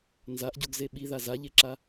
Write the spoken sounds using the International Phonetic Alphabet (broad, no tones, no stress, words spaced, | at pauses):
nzaʔɟoɡze ɓiða zaʎeǁa